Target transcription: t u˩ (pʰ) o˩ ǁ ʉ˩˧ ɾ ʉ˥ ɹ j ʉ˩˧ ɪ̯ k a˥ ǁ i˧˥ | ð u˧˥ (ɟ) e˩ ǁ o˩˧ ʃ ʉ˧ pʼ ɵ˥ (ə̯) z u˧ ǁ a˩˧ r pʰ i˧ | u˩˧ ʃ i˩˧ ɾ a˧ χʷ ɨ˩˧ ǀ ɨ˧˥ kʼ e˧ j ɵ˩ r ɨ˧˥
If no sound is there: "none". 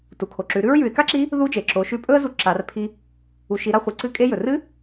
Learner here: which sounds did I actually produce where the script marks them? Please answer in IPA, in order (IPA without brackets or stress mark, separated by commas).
kʰ, d͡ʒ, ə̯